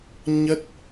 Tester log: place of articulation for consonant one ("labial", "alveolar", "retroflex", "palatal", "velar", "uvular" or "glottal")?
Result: palatal